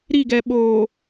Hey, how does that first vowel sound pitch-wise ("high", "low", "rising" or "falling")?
falling